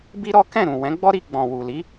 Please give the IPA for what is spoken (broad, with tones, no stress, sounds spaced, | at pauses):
b i˦ ɾ ɔ˦ k ɛ̃˦˨ ɾ ũ˨ w ɛ̃˨˦ ɡ͡b ɔ˦ ɾ i˧ ɡ͡b ɔ̃˨ w u˨ l i˨˦